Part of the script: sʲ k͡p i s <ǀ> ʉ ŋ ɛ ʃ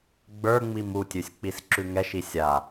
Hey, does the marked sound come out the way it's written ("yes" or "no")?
no